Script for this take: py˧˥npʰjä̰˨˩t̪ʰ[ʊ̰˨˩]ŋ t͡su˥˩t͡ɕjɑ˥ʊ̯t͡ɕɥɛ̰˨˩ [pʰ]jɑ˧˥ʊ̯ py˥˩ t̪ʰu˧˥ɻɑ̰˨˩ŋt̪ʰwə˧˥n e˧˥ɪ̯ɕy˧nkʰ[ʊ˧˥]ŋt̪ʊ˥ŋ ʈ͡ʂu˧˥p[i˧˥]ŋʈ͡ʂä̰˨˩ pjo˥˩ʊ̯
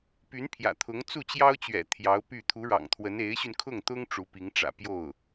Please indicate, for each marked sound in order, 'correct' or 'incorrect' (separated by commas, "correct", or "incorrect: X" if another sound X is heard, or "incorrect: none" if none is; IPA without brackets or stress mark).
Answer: incorrect: ʊ˧˥, incorrect: t̪ʰ, incorrect: ʊ˥˩, correct